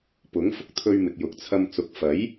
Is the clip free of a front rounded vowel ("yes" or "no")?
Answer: yes